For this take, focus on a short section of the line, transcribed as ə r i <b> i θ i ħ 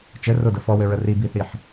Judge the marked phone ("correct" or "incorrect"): correct